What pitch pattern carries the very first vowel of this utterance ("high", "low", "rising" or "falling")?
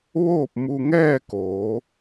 falling